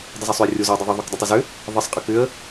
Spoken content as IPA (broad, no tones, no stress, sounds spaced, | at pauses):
dˤ ɪ z ɔ sˤ ʏ ə̯ rʲ o z ʏ ə̯ dˤ ʏ ðˤ ʌ ðˤ u k dˤ ʏ tˤ ə z ʏ | ðˤ ə sˤ qʼ ə k ʏ ə̯